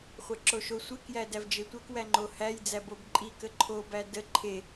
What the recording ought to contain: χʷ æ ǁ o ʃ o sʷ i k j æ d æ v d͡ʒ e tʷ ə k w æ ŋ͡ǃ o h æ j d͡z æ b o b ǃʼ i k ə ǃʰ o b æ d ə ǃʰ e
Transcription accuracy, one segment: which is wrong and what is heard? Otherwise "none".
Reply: none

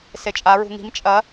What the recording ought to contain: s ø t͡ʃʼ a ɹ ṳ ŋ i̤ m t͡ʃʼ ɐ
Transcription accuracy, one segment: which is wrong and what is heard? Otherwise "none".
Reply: ø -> e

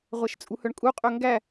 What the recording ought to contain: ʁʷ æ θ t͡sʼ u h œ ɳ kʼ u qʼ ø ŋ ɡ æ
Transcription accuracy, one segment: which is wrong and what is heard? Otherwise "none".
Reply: θ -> ʃ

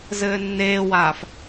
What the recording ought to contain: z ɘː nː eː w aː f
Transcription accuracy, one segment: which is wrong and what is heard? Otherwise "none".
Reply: none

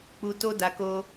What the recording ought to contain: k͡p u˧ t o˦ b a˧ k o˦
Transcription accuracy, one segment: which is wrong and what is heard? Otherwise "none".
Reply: b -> d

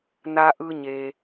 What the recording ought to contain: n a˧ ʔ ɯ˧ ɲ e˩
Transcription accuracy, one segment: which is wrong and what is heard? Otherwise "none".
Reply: none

